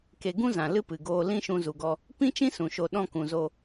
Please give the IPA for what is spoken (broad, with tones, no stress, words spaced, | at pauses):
ke˧ ɡũ˦zã˨ lɨ˦pɨ˨ɡoː˧ lĩ˦ʃũ˧zu˨ɡɔ˧ | pĩ˦t͡ʃĩ˦ sũ˨ʃo˧ ɗɔ̃˧kũ˨zo˧